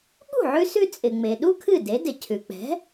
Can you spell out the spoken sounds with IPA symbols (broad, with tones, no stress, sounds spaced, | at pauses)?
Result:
ɠ ṳ˥˩ ʕ ʉ˧ s ʉ˧ t͡sʼ ɪ˩ ŋ͡m e˩ ɗ u˥ kʰ ɨ˥˩ d e˩˥ d ɪ˩ cʰ ʉ˩ k͡p ɛ̤˩˥